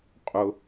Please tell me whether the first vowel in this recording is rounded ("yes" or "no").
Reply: yes